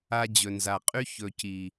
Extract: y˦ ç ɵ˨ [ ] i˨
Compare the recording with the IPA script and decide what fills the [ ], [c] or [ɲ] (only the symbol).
c